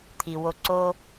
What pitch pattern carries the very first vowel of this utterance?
low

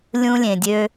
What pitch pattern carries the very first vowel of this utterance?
high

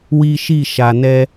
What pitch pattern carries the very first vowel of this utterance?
high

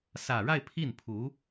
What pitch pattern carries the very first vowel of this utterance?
low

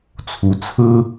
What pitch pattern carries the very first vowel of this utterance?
rising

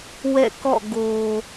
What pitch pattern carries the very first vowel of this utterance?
falling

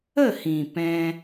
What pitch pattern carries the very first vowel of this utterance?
falling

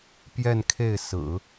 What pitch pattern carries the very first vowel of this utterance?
falling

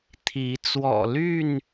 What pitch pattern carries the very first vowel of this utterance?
rising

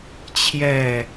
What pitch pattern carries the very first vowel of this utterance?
falling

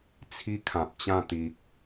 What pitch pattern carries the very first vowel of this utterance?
high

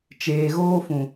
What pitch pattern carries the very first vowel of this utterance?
low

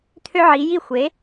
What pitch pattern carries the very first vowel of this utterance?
high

